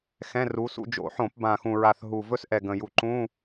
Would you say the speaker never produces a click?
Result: no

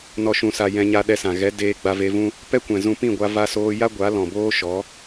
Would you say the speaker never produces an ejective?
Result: yes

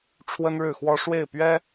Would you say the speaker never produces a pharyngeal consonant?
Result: yes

